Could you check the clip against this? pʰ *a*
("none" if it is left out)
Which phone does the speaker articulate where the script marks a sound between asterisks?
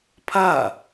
a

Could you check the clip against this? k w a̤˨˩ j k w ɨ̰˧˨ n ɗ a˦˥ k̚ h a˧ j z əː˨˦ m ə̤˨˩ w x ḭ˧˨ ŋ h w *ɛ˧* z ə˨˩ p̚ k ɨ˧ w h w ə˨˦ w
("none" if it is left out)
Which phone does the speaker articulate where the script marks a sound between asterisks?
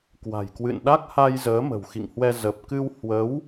ɛ˧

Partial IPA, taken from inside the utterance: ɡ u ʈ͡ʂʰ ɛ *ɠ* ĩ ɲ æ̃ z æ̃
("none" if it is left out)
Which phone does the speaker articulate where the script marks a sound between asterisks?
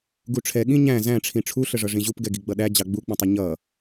ɠ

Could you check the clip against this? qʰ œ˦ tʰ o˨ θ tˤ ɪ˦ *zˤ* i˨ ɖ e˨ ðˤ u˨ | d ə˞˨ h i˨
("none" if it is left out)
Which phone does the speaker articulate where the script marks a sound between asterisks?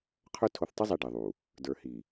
zˤ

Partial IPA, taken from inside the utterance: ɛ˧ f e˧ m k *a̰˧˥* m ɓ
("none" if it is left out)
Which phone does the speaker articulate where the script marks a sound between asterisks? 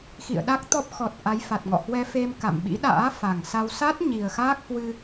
a̰˧˨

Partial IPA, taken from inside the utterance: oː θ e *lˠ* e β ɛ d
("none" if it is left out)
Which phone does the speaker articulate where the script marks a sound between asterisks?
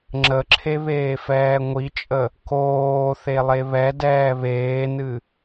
lˠ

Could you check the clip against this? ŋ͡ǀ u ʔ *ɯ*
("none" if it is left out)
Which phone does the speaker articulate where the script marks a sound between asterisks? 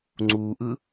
ɯ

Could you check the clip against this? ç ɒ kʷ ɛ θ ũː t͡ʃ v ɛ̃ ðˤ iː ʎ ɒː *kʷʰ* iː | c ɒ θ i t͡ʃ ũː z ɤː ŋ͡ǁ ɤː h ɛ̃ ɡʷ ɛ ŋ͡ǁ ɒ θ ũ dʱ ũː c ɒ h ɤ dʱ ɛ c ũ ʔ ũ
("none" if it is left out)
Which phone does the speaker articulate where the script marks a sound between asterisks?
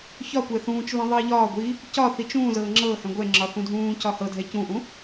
ɡʷ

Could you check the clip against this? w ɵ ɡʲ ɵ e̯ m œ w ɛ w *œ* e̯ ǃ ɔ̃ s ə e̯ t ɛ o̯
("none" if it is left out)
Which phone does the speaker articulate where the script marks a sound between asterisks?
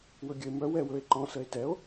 ɵ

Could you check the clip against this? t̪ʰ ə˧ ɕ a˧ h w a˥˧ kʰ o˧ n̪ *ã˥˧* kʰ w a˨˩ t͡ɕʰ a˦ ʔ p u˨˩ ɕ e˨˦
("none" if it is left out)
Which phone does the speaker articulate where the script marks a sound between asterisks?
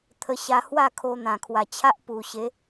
ã˨˩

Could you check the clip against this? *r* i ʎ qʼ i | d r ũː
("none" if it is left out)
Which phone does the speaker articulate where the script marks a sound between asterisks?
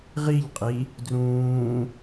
ʁ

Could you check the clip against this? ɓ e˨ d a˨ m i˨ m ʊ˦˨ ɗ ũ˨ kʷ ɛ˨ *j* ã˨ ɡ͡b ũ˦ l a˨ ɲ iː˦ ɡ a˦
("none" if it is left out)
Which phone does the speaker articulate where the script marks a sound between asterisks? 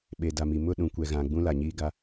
ɣ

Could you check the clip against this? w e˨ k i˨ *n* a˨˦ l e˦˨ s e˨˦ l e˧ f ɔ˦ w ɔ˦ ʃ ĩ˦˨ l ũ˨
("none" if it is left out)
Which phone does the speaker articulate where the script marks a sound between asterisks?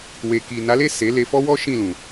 n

